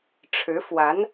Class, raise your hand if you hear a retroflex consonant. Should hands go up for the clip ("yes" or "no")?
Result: yes